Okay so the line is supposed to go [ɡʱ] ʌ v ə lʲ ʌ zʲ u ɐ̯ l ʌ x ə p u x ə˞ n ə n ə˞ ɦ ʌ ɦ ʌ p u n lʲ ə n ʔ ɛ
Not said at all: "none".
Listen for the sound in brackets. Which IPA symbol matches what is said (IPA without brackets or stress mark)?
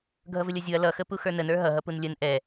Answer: ɡʱ